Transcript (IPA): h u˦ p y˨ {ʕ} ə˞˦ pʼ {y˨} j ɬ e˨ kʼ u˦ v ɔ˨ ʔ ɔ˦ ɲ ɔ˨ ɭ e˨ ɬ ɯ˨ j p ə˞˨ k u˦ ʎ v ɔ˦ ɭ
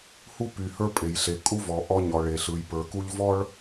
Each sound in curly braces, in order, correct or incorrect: incorrect: h, incorrect: e˨

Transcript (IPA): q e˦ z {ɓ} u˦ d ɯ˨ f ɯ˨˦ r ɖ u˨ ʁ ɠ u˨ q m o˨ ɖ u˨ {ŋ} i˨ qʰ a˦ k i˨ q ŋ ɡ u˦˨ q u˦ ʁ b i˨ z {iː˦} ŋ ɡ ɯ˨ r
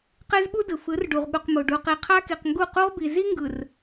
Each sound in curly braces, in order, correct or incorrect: correct, incorrect: q, incorrect: i˦

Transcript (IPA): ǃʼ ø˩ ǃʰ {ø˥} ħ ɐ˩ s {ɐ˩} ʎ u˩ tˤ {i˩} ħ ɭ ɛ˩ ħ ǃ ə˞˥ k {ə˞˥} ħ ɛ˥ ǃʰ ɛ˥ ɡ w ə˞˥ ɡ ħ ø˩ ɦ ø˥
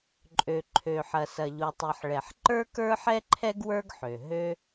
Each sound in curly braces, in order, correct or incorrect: incorrect: ø˩, correct, correct, correct

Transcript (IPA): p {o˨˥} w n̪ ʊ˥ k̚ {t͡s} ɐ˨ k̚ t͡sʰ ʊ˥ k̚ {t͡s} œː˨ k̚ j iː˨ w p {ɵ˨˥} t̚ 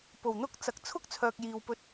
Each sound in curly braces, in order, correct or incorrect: incorrect: o˨˩, correct, incorrect: t͡sʰ, incorrect: ɵ˧

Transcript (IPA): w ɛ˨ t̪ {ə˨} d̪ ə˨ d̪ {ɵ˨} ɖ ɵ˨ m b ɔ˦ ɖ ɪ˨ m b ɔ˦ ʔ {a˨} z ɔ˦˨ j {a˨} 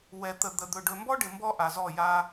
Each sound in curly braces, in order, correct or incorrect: correct, correct, correct, incorrect: a˦

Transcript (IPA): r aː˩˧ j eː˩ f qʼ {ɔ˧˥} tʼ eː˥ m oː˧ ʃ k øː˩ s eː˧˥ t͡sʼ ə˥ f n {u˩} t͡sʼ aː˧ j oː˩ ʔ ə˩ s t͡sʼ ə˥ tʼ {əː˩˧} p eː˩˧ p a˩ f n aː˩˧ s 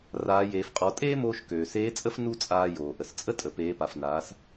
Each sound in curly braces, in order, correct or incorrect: incorrect: ɔ˩˧, incorrect: u˥, incorrect: ə˩˧

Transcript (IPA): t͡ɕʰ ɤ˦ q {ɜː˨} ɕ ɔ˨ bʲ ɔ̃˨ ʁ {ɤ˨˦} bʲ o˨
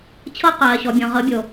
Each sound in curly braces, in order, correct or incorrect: correct, correct

